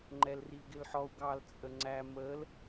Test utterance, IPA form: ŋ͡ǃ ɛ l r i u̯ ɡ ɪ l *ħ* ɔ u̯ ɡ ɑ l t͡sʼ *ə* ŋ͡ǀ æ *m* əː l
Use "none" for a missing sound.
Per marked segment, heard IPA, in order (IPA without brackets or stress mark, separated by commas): ħ, ə, m